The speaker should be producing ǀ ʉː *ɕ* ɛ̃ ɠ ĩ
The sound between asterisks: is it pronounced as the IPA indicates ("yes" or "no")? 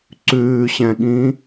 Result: yes